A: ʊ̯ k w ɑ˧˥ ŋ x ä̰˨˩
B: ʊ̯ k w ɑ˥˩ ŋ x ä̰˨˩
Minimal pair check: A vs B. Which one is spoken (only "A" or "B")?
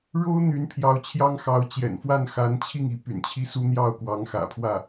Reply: A